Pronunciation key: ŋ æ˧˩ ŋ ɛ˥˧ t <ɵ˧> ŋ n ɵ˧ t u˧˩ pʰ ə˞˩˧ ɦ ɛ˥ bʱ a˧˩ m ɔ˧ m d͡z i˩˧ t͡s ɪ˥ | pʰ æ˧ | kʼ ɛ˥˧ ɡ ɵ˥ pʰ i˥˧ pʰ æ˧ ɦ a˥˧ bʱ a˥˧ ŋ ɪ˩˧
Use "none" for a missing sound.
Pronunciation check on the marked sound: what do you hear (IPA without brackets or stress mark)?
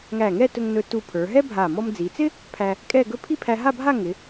ɵ˧